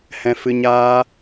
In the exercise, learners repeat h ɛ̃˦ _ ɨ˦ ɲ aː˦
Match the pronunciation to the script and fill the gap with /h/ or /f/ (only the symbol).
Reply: f